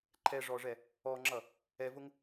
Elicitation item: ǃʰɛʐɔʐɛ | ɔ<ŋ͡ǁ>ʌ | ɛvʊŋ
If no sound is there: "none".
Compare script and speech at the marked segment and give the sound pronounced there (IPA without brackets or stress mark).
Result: ŋ͡ǁ